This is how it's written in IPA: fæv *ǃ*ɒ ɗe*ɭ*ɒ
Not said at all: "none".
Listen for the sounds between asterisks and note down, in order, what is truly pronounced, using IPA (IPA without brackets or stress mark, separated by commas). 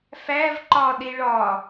ǃ, ɭ